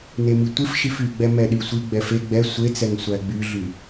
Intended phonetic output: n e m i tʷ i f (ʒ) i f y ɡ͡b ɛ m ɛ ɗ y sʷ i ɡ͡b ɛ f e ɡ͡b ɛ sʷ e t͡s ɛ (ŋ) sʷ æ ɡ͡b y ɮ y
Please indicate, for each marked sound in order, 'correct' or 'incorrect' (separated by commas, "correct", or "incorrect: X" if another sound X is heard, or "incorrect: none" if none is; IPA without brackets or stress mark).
incorrect: ʃ, correct